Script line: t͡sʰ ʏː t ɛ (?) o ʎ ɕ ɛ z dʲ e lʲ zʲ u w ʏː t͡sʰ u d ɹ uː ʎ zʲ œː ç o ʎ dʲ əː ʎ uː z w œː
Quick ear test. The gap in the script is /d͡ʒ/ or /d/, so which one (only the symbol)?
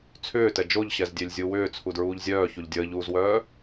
d͡ʒ